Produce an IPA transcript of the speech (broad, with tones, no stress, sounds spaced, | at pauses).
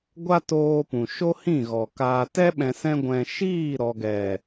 ɡʷ a˦ t oː˧ p ũ˨ ʃ o˦ h ĩ˦˨ ɣ ɔ˨ k aː˨ t ɛ˦ ɓ ɛ̃˧ s ɛ̃˦ ɡʷ ɛ̃˧ ʃ iː˦˨ ɾ ɔ˨ ɡ ɛ˨